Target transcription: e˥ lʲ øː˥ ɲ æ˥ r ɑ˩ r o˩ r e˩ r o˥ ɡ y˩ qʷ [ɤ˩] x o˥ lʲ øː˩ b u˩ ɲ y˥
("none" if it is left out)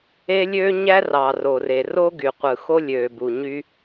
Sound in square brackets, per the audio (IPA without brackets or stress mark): ɯ˩